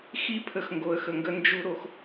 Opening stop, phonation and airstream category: aspirated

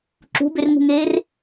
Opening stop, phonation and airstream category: click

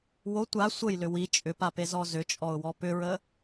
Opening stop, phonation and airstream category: plain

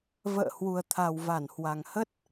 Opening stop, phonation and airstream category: aspirated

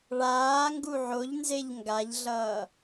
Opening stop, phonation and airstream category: plain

